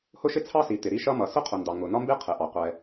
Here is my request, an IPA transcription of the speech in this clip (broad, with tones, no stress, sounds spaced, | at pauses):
h ʊ˥ ʃ ɪ˥ t͡sʰ ɑ˥ s i˩ t̪ ɪ˩ ɾ i˥ ʃ ʌ˥ m ʌ˩ s ʊ˥ qʰ ʊ˩ n d ɑ˩ ŋ ʊ˩ n ɒ˥ m b i˥ qʰ ɪ˩ ʔ ɑ˩ qʷ ɛ˩